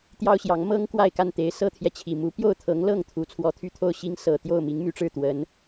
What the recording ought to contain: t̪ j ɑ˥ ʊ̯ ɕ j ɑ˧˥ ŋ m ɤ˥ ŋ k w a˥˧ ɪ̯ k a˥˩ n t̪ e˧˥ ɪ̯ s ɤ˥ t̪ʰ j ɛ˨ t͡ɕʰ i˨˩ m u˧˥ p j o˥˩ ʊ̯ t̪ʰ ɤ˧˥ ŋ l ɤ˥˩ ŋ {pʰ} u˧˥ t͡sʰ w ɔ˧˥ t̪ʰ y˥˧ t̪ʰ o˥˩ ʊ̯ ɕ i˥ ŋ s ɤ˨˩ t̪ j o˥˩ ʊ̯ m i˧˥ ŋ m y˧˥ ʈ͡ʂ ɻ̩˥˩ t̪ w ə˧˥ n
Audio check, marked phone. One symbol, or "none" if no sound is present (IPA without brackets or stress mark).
t̪ʰ